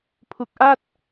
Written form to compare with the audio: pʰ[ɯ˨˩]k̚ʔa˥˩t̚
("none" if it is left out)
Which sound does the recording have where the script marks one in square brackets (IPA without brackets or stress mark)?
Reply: u˨˩